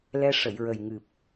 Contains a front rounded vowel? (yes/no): no